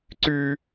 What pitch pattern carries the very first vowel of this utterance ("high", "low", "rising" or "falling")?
high